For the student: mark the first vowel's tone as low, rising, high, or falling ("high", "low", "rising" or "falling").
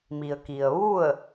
low